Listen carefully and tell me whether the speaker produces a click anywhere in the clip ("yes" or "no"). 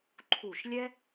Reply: yes